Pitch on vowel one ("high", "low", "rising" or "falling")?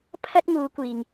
high